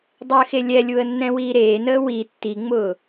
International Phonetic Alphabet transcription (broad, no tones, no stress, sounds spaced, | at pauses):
dˤ əː x e lʲ ɛ lʲ u ə̯ nː ɛ̃ w iː ɾ eː n əː w i tː i ŋ͡m ʊː